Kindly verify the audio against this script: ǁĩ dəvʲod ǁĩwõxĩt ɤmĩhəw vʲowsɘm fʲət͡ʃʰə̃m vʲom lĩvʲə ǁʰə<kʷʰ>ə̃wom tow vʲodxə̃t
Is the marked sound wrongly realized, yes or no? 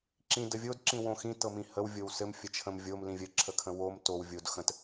yes